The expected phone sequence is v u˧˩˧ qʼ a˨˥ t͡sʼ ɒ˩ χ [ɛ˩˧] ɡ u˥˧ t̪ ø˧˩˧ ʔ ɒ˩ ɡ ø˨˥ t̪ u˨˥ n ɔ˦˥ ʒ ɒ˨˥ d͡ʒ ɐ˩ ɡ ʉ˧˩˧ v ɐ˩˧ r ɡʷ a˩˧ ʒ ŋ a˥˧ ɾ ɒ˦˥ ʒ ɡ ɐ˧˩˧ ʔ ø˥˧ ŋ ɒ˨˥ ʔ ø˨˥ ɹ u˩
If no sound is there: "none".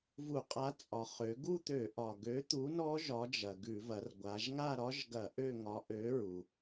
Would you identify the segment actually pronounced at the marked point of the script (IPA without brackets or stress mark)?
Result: ø˩˧